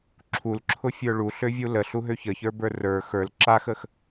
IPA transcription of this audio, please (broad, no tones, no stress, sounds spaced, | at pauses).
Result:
ǁʰ u l ǁʰ ʊ fʲ ə˞ ɭ u ɬ ø vʲ u l ə ɬ u ɦ ø ç ə ç ə˞ b ə˞ r ə˞ x ə˞ l ǁ a x ə x